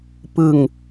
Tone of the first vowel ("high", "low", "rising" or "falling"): low